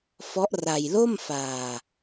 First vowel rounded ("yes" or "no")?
yes